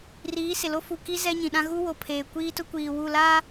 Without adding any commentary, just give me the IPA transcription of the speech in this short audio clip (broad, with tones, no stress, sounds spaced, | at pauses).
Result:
r iː˨˦ s ɪ˨ l o˦ f u˨ k i˦ z ɛ˦ ɲ ĩ˨ ɗ ã˦ ɣ u˦ w o˨ pʰ eː˨ kʷ iː˦ t ʊ˦ kʷ iː˨ w u˦˨ l a˦